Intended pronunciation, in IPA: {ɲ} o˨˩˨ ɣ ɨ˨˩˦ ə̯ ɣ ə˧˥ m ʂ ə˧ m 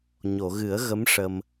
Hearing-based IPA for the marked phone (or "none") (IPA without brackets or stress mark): ɲ